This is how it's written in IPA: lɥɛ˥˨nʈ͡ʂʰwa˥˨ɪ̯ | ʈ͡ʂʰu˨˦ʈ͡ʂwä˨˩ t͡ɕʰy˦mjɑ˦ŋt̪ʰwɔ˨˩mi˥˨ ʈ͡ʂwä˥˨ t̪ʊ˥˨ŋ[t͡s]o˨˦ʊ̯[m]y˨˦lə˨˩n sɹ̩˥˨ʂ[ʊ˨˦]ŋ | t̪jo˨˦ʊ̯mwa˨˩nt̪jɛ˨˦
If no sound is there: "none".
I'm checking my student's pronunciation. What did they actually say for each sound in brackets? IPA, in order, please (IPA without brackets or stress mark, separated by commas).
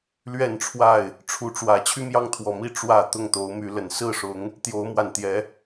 t̪, m, ʊ˨˦